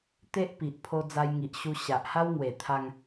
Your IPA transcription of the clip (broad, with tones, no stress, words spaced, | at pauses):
t̪e˦ʔpi˨ʔpʰo˧ d͡za˧jŋi˨ʔ ɕu˧ɕa˨ʔ ha˦wŋwe˨˩t̪ʰa˧ŋ